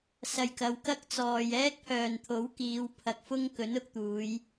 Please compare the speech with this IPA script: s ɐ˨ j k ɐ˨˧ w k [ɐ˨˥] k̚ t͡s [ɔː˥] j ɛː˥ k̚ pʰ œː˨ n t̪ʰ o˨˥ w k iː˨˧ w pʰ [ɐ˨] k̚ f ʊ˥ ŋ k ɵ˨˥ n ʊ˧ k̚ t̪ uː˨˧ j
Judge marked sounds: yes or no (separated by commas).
no, no, yes